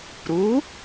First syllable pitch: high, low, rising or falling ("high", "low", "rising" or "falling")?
rising